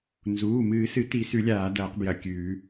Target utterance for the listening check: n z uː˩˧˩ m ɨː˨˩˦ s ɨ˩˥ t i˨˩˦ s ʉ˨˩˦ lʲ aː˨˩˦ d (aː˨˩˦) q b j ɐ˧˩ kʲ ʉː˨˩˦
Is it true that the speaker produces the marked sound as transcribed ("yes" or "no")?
no